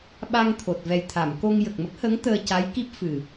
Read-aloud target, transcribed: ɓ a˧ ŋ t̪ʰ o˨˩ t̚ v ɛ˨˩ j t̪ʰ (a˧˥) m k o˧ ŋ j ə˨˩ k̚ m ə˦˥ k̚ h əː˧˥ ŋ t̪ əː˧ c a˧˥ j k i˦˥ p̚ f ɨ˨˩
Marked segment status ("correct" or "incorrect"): incorrect